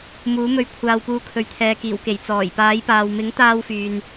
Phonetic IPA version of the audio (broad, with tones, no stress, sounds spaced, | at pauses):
m uː˨˥ m ɵ˧ ɥ kʷʰ aː˧ w p uː˧ kʰ ɵ˨ ɥ t̪ʰ ɛː˨ k iː˨˩ w k e˨˩ j t͡s ɔː˨˩ j p aː˨˥ j p aː˨ w m ɪ˨˥ ŋ t̪ aː˥ w f yː˨ n